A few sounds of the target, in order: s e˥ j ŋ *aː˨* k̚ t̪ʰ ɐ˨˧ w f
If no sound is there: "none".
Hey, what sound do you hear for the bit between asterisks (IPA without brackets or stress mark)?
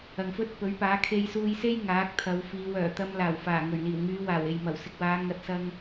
aː˨˥